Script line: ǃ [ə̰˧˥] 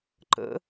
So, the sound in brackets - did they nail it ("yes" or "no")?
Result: yes